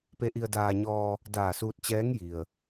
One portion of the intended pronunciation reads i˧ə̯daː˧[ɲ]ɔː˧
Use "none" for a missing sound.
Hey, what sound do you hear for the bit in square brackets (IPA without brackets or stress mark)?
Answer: ɲ